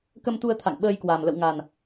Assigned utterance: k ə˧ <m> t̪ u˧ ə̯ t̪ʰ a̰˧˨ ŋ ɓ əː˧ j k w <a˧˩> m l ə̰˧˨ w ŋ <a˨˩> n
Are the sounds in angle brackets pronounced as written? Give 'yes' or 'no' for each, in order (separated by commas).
yes, no, yes